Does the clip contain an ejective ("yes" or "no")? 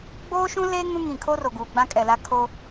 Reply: yes